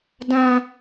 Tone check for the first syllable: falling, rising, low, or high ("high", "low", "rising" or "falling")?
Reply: high